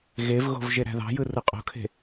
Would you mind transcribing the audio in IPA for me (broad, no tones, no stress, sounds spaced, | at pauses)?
ɣ e v ɣ o̤ v ʒ e ɾ æ̤ ð ɑ̤ j ɯ r ɯ qʼ o̤ kʰ e̤